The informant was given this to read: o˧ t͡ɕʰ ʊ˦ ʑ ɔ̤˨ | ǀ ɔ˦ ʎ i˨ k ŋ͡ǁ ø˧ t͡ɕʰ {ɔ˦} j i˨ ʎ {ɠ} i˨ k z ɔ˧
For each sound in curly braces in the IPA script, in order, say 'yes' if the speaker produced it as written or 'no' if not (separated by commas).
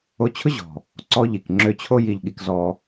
no, yes